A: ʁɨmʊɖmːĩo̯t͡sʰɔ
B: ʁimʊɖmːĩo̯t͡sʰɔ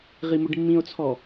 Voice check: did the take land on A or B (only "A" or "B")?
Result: B